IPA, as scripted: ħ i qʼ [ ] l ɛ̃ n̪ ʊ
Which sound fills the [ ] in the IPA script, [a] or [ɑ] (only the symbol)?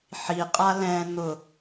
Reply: a